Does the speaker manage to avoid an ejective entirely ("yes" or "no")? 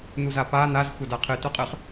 no